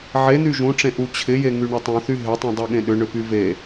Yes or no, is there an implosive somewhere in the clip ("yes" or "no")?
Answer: yes